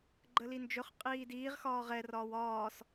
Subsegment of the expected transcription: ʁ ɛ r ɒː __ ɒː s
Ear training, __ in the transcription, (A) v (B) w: B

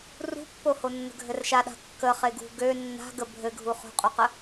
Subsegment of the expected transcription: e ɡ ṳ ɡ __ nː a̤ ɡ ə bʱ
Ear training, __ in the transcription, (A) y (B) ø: B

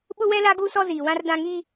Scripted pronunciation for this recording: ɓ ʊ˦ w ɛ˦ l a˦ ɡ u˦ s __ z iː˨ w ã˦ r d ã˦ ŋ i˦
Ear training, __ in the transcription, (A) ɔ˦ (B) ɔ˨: A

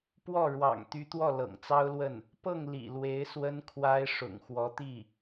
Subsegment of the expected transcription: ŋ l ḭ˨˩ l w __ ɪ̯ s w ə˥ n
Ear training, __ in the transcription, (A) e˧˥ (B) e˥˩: A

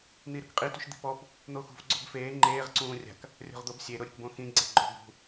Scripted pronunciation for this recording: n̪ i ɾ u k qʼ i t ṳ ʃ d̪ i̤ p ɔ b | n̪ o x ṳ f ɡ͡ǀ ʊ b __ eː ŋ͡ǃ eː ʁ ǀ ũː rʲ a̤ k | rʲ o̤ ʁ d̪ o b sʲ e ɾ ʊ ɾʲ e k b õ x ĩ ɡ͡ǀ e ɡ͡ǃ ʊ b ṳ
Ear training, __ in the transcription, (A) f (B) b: A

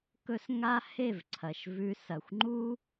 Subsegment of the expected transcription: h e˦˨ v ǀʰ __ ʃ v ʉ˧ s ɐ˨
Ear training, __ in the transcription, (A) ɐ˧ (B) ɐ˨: B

